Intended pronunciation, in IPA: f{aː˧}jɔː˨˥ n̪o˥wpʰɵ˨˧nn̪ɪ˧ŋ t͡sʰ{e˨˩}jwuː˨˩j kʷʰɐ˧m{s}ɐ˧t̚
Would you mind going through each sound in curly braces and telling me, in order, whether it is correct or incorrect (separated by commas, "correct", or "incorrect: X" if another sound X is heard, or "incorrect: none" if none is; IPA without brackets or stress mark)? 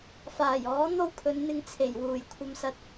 incorrect: aː˨˩, correct, correct